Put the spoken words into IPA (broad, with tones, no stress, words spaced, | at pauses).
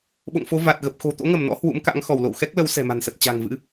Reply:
ɓo̰˧˨ŋfo˨˦ va˨˩t̚ ɣə˨˩p̚xo̤˨˩ t̪o̰˧˥ŋə˧˩mnɔ̰˧˥ hwṵ˧˥mka̰˧˥ŋxɔ˧˩w lo̰˧˨wxɛ˦˥k̚lə˨˦w sɛ̤˨˩ma̤˨˩nsə˨˩t̚ t͡ɕa̤˨˩ŋvɨ̰˧˥